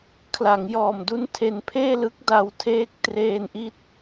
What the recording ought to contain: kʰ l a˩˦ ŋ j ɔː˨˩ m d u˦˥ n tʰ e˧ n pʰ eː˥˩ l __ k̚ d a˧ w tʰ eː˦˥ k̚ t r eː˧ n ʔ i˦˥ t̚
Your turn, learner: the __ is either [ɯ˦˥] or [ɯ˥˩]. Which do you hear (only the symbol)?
ɯ˦˥